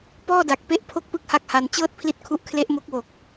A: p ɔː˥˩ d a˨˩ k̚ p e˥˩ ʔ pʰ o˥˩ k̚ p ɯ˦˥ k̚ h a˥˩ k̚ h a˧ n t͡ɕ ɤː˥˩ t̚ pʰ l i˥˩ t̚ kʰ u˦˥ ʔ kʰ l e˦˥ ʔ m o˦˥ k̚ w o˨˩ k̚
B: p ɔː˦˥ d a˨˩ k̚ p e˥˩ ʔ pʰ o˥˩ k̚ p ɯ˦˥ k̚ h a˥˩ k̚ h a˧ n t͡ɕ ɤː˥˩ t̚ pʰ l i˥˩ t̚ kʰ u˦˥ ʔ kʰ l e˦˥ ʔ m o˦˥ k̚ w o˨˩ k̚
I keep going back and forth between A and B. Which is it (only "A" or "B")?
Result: A